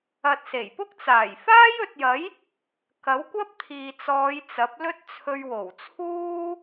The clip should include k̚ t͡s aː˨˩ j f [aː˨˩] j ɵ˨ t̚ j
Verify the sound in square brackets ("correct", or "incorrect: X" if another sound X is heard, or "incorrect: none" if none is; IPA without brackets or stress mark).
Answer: incorrect: aː˥